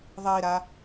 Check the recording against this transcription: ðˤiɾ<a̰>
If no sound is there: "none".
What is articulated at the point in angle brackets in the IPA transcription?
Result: a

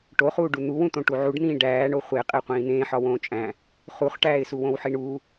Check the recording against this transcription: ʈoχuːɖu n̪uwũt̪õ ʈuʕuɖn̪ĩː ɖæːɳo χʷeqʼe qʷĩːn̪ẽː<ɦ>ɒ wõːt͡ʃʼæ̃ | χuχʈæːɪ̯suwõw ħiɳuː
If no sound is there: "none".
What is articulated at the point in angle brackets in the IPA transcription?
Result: ħ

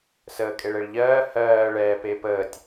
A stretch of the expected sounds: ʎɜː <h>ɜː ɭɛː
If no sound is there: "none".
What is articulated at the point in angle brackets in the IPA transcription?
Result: h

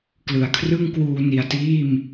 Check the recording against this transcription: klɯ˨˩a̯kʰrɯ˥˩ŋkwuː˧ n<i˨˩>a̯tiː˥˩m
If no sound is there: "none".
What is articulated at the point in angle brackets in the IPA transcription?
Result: i˨˩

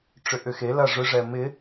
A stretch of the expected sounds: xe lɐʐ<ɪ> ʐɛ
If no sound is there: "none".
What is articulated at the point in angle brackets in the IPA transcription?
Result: ʏ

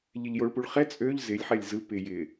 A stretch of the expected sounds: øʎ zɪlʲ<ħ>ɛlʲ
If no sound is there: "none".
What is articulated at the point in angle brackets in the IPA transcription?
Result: ħ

